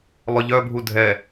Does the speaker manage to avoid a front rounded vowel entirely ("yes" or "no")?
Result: no